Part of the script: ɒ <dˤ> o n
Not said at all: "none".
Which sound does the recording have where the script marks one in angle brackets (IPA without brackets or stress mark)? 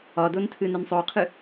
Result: d